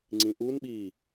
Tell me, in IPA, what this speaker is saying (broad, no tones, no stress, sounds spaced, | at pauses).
ŋ͡ǀ ĩ ʔ u n ɓ iː